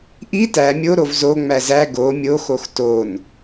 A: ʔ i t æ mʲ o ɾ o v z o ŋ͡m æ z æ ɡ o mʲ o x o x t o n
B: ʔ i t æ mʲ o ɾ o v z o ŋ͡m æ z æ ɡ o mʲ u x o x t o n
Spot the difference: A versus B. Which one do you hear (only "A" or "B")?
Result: A